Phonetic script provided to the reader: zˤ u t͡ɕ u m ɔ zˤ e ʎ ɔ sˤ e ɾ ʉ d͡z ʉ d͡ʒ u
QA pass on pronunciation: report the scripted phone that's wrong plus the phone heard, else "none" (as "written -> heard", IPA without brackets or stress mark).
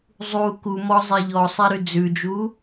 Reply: t͡ɕ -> k